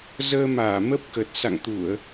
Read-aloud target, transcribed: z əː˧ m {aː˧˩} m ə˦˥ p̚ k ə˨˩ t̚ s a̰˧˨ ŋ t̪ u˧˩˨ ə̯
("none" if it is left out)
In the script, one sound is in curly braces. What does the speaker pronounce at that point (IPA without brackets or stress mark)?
aː˧˩